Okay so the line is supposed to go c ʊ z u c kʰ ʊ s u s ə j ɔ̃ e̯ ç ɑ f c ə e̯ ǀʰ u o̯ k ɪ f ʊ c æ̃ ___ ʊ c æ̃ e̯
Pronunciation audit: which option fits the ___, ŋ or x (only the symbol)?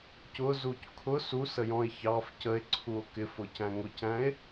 ŋ